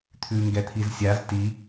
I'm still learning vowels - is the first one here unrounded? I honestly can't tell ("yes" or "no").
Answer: no